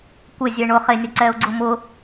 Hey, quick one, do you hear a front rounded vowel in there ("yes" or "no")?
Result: no